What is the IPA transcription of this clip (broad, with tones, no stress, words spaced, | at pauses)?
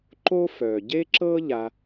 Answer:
ǃo˦fœ˩ ɟe˦ǁɤ˦ʎa˨